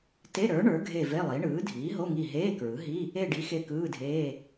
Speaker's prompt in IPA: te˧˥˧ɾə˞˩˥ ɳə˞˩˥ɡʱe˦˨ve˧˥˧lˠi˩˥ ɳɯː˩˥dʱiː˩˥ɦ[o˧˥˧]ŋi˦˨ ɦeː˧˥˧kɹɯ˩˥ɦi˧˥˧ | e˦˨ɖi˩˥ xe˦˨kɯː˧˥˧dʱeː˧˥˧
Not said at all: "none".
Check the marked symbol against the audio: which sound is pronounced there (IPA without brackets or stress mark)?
o˧˥˧